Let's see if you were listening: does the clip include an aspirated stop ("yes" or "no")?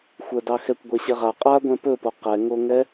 no